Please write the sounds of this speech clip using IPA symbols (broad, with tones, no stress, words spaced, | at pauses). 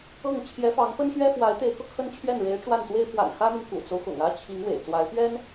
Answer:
ɤ˥˩ŋ t͡ɕʰjɛ˧˥fɑ˧˥ŋpə˥nɕɥɛ˥ fwa˧˥ɪ̯ t̪e˧˥ɪ̯kɤ˧ kʰə˥nt͡ɕʰɥɛ˥˩n ɻe˧˥ɪ̯ ʈ͡ʂwa˥˩nt̪we˥ɪ̯ fwa̰˨˩nxä˥mi˨n kṵ˨˩t͡so˦ʊ̯xʊ̰˨˩ŋä˥ t͡ɕʰi˧˥ŋ wḛ˨˩ɪ̯t͡swa˧˥ɪ̯ pɥɛ˥n